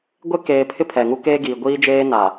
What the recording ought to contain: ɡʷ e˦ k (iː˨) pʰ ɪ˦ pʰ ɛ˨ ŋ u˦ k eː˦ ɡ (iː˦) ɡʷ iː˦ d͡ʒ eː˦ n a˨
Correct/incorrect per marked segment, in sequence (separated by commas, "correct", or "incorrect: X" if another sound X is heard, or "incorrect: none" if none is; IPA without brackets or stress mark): incorrect: eː˨, incorrect: iː˨